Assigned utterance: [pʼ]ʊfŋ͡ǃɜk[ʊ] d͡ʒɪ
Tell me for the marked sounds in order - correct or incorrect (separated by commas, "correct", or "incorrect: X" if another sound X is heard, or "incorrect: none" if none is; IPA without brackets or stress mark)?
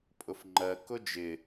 correct, correct